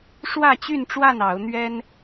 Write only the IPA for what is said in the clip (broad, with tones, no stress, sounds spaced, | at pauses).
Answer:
ʂ w ä˥˨ t͡ɕ y˥˨ n ʈ͡ʂ w a˥˨ n ɑ˨˦ ʊ̯ n̪ ɥ ɛ˦ n